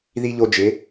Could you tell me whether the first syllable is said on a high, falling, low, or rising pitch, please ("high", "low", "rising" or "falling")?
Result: high